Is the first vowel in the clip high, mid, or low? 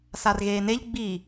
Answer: low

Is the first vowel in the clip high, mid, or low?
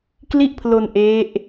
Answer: high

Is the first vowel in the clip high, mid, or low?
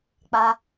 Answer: low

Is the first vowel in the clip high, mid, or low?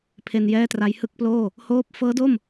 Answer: mid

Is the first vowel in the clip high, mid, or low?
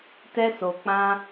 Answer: mid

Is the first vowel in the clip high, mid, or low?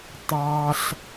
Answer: low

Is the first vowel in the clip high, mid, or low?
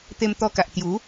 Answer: mid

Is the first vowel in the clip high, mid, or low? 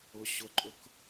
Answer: high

